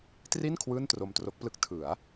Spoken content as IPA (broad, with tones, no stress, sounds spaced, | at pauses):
t r i˥˩ n kʰ w ɯː˥˩ n t r o˧ m t r o˦˥ k̚ p l ɯ˦˥ k̚ tʰ ɯ˩˦ a̯